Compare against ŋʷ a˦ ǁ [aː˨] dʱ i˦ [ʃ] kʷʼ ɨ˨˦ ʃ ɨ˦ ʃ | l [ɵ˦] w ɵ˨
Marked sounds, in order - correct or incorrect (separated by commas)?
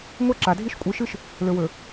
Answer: incorrect, correct, incorrect